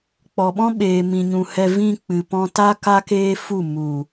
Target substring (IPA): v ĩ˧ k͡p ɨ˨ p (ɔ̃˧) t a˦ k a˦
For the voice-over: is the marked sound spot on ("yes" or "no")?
yes